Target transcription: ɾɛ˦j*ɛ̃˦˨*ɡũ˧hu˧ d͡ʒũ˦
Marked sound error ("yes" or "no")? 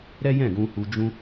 no